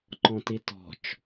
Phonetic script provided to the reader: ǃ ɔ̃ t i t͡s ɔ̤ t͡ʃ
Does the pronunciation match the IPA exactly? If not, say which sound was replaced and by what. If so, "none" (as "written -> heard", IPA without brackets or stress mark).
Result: t͡s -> t